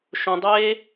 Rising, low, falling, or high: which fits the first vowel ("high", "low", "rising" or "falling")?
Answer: high